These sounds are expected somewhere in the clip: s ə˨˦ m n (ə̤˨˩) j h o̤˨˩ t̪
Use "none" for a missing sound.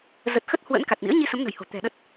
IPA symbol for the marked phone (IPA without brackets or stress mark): ə̤˨˩